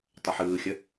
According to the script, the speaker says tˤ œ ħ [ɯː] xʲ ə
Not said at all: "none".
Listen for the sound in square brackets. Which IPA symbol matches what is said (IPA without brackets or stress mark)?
ɯː